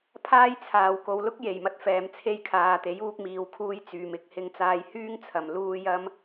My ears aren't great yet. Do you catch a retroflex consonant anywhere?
no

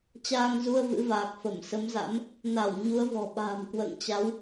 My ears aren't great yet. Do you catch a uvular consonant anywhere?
no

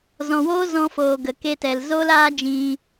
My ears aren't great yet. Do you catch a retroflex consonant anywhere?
no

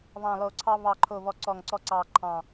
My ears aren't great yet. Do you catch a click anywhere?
yes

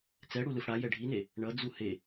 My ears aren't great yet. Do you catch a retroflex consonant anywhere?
yes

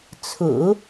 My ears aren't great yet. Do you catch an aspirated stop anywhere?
yes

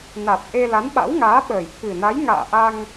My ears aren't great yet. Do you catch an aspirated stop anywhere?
yes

